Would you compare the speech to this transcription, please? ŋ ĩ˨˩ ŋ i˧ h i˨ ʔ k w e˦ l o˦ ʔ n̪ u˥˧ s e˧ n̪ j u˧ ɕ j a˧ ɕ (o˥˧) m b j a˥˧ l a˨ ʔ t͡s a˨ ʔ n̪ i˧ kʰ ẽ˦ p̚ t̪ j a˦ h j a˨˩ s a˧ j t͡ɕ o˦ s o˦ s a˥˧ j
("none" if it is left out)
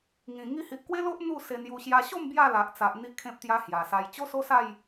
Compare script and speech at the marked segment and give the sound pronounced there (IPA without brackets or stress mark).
o˥˧